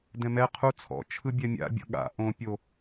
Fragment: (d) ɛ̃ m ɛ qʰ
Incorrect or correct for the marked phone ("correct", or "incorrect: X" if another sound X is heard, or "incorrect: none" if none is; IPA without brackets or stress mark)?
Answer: correct